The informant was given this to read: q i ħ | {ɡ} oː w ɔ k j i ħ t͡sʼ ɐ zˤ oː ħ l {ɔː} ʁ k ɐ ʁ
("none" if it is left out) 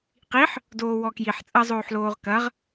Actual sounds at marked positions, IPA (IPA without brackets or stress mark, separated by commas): d, oː